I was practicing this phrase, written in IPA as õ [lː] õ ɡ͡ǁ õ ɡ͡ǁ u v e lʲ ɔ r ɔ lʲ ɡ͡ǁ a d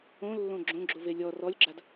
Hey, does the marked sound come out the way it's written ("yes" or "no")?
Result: yes